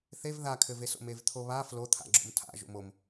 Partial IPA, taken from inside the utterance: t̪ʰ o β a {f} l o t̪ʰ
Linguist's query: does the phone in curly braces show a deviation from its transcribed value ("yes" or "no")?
no